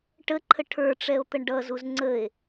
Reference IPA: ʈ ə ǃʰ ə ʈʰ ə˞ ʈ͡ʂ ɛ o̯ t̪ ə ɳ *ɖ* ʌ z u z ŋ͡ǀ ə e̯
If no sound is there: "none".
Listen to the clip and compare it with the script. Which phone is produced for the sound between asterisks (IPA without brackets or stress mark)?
ɖ